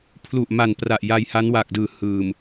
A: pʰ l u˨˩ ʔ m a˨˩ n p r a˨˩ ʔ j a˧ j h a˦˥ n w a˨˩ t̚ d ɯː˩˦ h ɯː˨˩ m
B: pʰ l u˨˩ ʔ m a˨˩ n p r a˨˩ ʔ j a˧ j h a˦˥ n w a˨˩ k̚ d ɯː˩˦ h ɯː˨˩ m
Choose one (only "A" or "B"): B